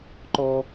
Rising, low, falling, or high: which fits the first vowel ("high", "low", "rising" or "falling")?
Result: high